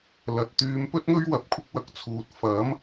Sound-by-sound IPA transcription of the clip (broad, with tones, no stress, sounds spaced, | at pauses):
l ɐ˨˥ t̚ t̪ yː˨˧ m p ɵ˥ t̚ ŋ ɵ˥ ɥ w ɐ˨˥ p̚ kʷʰ ɪ˧ k̚ w ɐ˨˥ k̚ t͡sʰ uː˨ t̚ f ɐ˨˥ m